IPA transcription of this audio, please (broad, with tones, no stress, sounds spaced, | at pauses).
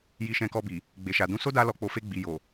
j i˧ ʃ ɛ̃˧ k ɔ˧ b i˨ | ɡ͡b e˨ ʃ a˨ d ũ˨˦ s o˦ d a˦ l ɔ˧ k͡p o˧ f e˧ ɡ͡b i˨ j o˨